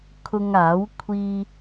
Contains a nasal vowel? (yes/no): no